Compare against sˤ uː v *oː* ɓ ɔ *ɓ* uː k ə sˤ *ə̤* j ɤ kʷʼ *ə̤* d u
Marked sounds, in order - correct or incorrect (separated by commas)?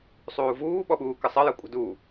incorrect, correct, incorrect, correct